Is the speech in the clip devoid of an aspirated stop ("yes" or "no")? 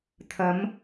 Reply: no